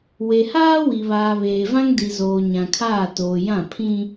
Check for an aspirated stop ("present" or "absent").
present